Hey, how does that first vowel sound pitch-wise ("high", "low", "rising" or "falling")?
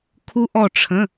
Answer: rising